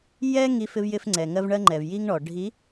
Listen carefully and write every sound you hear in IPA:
jɛ˦ ŋi˦fɪ˦vjɪ˦fŋ͡ǀɛ˨ ŋɜ˦vɳɜ˦ŋ͡ǃɛ˨v ji˦ŋɳɔ˨ ɖʱi˨˦

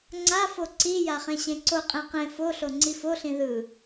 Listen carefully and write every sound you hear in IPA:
ŋ͡ǀafo ǀija χẽɕẽǀoqʼẽ qẽ foɬo ŋ͡ǀifoɬĩ ðɯ

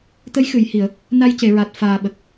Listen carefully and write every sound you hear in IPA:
t̪ə˧˥jxɨ˨˩˨jhi˨˩˨ə̯ | na˧jce˨˩˨ɹa˨˩t̚ faː˨˩ɓə˨˩k̚

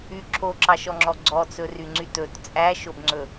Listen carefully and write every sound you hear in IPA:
y ǁʰoǁɑʃɔŋ͡ǁɔ ɡ͡ǀɔt͡sɵryŋ͡ǀyt ɵt t͡sʼæʃobŋ͡ǀɵ

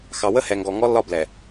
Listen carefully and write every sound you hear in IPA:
xɑ˨wə˦hɛ˨ŋɡɔ˨ ŋɔ˦lːɒ˦blɛ˨

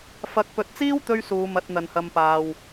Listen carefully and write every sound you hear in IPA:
fɐ˨˥k̚pɵ˨t̚t͡siː˥w t̪ɵ˥ɥsuː˨˧ mɐ˨˥t̚n̪ɐ˨nhɐ˧mpaː˨w

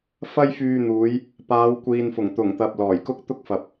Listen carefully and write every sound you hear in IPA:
fɐ˥jfyː˧n̪uː˨˧j | paː˨˧w kʷiː˨nfʊ˨˩ŋt̪ʊ˨˩ŋt̪ɐ˨p̚ lɔː˨˩jkʊ˥k̚t̪ʊ˥k̚fɐ˨p̚

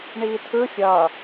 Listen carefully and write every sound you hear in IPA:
ɳiːtʰɯ fʲʌ

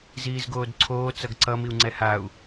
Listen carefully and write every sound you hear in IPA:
ziːzɡoːdǀʰoː t͡sʌɡǀʌ miu̯ŋ͡ǀɛhau̯

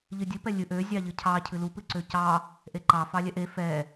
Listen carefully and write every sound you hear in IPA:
ʎɨdʲɨ pɛlʲɨ ʔø zʲɑʎɨcʰɑ cʰɨlu pɨǀøcɑ | ʔeǃɑ fɑlʲɛʔe fɛ

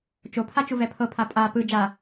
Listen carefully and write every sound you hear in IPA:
t͡ʃopʰa t͡ʃuvɛpʰɤpʰa pʼa pɯ d͡ʒa

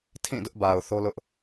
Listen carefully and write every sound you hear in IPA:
tʰĩ˦˨dʊ˦ʔba˨ʊ̯ θo˦lʊ˦ʔ

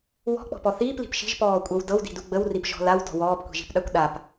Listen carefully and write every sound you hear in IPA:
wɔ̤k͡pɔ̤pɔ θiːpli̤p ʃi̤ʒpɔːkʷʼɤw dɤwdi̤du ɡ͡bəwripʒɔ̤ lawdɔ̤ wɔːpkʷi̤ʒi̤pɗakʷ ɗap

